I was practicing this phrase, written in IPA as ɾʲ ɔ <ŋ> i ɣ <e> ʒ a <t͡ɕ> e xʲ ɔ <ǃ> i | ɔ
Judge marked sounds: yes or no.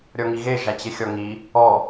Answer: yes, yes, yes, no

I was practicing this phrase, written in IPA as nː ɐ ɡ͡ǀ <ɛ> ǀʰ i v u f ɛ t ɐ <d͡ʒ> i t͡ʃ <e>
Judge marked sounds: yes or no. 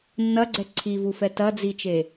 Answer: yes, no, yes

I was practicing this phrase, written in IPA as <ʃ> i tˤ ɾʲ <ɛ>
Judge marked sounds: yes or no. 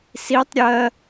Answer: no, no

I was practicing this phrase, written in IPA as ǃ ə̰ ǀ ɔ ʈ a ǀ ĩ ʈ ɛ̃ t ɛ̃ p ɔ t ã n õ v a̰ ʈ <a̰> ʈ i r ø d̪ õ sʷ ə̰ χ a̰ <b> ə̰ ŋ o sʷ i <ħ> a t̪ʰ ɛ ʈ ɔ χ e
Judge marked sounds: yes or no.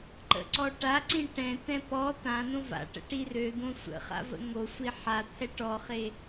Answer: no, no, yes

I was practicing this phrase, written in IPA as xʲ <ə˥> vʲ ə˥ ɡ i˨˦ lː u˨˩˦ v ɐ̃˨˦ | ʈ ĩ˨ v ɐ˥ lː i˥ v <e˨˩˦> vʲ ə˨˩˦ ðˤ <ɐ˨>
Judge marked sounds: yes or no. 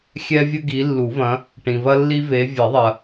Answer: no, no, yes

